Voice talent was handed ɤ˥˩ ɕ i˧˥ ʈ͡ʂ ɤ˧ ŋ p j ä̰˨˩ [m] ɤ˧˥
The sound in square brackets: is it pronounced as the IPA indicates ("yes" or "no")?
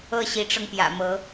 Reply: yes